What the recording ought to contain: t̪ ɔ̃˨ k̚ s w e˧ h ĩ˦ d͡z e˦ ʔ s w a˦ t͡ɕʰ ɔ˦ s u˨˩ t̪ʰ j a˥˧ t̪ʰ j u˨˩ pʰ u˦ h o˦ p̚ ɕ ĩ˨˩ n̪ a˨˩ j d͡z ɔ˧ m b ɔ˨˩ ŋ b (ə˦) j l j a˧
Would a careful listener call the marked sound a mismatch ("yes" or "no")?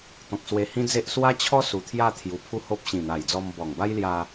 yes